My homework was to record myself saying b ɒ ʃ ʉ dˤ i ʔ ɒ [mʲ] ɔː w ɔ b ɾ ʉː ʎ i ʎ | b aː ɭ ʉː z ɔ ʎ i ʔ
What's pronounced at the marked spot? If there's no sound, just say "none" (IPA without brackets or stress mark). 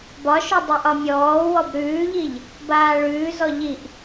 mʲ